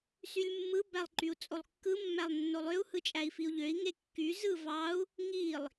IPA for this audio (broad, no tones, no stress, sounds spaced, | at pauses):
s y lʲ mː ɯ b æ lˠ ǃ y u̯ t͡sʼ o lˠ kː ɯ mː æ lˠ nː o lˠ ø u̯ h ɯ t͡ʃʼ æ i̯ f i u̯ ʎ ø i̯ ŋ e kː y z ɯ v ɑ u̯ | ŋ i lˠ